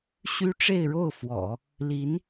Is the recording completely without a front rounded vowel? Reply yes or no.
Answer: no